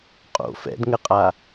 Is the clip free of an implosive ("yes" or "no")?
yes